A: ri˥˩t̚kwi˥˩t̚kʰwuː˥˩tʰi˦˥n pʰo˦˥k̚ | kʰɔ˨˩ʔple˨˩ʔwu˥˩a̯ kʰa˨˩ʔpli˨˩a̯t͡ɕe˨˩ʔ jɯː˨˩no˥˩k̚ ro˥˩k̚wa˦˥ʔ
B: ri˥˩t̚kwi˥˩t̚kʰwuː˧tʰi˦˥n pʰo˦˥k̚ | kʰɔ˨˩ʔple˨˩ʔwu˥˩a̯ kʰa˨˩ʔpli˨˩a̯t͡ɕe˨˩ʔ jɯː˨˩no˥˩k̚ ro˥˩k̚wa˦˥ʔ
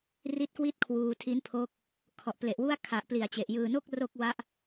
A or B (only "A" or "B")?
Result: B